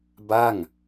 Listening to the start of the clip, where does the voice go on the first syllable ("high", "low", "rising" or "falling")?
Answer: falling